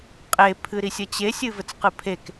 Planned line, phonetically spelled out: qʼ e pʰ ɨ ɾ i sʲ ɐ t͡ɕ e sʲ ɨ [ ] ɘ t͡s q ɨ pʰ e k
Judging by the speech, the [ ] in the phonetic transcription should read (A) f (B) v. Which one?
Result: B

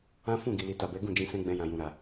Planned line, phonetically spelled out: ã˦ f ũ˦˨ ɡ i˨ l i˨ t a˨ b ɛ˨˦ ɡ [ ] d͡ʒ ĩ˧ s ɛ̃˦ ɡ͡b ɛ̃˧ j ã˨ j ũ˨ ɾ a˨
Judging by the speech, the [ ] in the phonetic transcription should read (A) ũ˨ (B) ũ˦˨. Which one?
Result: B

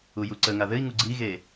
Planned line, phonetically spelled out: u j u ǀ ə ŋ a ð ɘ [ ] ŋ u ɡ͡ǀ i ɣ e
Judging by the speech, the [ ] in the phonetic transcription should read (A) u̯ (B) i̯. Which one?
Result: B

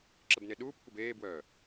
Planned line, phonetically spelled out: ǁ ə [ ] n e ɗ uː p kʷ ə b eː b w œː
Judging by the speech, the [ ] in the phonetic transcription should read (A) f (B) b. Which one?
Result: B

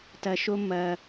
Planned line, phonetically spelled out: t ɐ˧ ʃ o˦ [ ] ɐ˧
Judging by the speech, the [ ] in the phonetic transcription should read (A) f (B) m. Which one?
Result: B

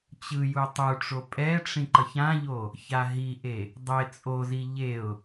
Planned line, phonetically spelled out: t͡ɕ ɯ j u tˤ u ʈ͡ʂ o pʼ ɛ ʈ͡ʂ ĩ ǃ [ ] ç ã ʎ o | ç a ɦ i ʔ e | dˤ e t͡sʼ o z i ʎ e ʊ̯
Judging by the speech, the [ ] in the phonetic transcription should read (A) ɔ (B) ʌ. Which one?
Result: B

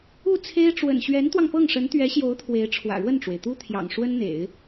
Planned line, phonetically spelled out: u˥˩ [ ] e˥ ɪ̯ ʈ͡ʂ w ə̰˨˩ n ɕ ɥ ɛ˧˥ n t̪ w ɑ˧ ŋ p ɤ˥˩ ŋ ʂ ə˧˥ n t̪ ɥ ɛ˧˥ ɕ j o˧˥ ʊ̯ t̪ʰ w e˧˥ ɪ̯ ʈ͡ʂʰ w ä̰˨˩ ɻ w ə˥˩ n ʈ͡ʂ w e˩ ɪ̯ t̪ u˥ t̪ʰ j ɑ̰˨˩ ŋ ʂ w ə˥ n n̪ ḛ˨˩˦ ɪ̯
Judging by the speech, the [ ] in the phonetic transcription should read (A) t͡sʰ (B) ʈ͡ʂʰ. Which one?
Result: A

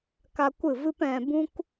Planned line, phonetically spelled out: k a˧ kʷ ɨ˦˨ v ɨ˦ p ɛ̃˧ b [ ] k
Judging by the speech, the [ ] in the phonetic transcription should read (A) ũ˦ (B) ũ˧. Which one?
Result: A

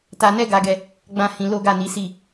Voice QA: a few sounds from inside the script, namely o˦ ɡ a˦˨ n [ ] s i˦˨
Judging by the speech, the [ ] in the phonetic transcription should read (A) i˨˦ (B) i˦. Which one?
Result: A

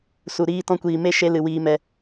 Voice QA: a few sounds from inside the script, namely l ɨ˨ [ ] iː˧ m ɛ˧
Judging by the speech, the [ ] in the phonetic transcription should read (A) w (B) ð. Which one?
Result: A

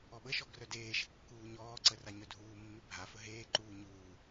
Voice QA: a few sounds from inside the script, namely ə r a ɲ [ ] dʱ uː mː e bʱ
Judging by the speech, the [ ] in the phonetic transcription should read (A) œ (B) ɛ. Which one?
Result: A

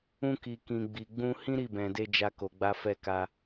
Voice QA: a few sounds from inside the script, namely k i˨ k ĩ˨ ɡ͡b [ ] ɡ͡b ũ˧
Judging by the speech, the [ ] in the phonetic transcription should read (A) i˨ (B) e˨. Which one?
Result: A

